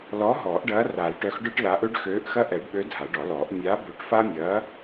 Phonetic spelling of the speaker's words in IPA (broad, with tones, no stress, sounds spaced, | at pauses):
l ɔ˨˥ ɦ ɔː˨˩˦ ʔ ɖ ɐː˨˥ r a˨˩˦ l ʈ œ˨˥ x ɖ œ˦ ʈ l aː˨˥ ʔ ø˦ ɖ x øː˨˥ ʔ x ɐ˦ ʔ ɛ˨˩˦ ɖ ɓ ø˨˥ dʱ a˨˩˦ ɖ ɔ˨˩˦ l ɔː˨˩˦ ʔ mʲ a˨˥ b ø˨˥ ʈ f a˦ mʲ ɐː˨˥